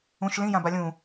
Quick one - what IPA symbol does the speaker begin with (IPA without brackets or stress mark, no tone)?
ũ